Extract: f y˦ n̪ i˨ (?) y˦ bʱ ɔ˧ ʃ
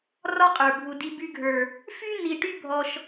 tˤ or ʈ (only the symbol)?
ʈ